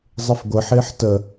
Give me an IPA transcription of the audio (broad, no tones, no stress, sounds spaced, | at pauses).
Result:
zˤ ɪ f ɡʷ ə ħ ɪː ħ t ə